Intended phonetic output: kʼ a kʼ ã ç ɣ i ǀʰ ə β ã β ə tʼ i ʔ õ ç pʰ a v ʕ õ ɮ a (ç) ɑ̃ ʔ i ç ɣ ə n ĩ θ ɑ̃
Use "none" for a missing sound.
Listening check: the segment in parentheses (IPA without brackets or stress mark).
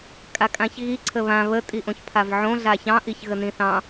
ç